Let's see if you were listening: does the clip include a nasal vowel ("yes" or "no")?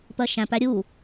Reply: yes